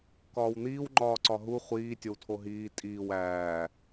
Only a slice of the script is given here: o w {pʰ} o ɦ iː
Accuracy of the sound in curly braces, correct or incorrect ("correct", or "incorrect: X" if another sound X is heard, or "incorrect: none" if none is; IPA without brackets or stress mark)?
incorrect: tʰ